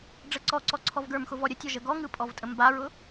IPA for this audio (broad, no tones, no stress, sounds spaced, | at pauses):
ɖ͡ʐ ə ǀ ɔ ǀ ɔ ǀʰ ɔ v ɡ ə˞ m x ʊ v ɔ ɾʲ ə tʲ ɔ ʒ ə ɡ ɔ ŋ ɯ pʼ ɔ v tʼ ə m b a ɹ ʊ